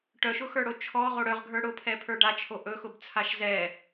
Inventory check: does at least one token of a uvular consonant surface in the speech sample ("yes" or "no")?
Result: yes